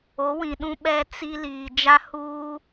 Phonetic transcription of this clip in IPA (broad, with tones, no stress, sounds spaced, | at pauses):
o˨˦ w ĩ˨ ɗ ũ˦ ɓ ɛ˦ t͡s i˦ l iː˨ d͡ʒ a˦ h uː˦